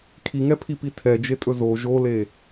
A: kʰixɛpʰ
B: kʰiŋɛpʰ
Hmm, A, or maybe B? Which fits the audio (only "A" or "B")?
B